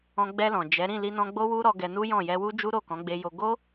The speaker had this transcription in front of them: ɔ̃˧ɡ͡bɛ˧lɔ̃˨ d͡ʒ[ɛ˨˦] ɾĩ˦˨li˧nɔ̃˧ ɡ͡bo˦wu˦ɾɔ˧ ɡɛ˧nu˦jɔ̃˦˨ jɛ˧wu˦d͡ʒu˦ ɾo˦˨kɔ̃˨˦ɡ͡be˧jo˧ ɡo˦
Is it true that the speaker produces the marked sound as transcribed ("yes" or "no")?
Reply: yes